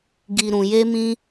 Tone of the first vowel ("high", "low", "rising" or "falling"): low